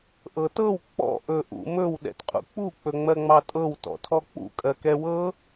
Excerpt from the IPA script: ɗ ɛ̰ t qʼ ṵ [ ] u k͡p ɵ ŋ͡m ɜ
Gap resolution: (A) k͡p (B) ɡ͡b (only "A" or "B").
A